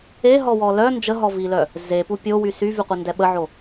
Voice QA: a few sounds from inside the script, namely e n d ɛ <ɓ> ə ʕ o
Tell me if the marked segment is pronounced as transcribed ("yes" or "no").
yes